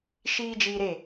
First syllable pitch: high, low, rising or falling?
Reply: high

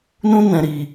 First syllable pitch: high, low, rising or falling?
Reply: high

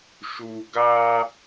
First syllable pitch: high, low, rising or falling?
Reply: low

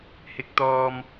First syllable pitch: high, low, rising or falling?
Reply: low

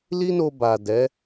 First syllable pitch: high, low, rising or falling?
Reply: high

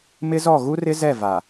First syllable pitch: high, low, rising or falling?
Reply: high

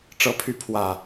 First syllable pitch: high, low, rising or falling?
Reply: rising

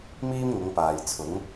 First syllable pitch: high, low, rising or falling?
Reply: high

